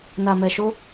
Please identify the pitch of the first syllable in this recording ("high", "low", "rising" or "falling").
low